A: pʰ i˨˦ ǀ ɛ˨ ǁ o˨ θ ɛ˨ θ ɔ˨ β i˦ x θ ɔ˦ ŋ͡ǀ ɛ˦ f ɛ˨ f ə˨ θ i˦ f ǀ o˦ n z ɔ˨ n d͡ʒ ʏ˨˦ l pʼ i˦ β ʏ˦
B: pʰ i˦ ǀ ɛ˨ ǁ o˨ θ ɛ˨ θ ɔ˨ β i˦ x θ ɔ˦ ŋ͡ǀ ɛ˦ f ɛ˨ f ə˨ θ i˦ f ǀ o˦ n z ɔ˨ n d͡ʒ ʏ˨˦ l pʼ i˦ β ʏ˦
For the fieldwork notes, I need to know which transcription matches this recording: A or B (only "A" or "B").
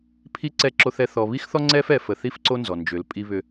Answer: A